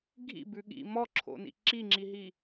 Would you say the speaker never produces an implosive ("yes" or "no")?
no